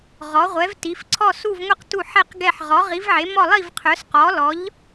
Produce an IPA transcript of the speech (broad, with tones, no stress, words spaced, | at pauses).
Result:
ʁɔ˩˧ʁʷɛ˩˧vti˩˧f ǀʰɔ˧˩su˧˩vŋʷi˧˩q tu˧˩ħɛ˧˩qɡɛ˧˩ħ ʁɔ˩˧ʁi˩˧vʕe˩˧ mɔ˧˩lˠi˧˩vqʰœ˩˧s qɔ˩˧lɔ˩˧ʎ